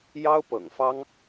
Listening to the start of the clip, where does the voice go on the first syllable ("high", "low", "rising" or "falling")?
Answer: high